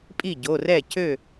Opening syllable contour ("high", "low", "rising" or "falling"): falling